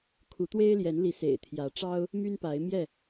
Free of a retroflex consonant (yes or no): no